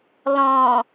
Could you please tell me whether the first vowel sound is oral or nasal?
nasal